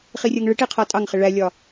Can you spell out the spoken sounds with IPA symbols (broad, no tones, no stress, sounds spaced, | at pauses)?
χ i rʲ ɜ ŋ ɭ ɪ ʈ i qʰ ɔ tʼ ɑ ŋ χ ɪ ɭ æ lʲ ɒ